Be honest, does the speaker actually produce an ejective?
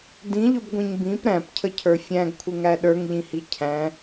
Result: no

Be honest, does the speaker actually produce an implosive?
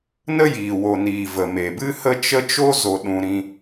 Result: yes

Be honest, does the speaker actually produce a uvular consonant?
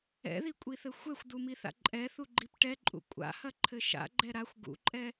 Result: no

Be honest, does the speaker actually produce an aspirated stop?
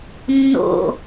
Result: no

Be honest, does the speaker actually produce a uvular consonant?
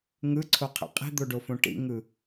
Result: yes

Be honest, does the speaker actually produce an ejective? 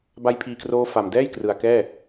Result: no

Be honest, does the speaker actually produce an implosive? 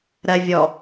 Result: no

